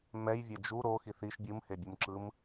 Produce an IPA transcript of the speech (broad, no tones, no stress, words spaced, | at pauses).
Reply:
mɛjvʲɛ d͡ʒu ɾo xiθiʃ bʲɯmhebʲumǁɯm